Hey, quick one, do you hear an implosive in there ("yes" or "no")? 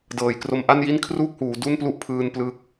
no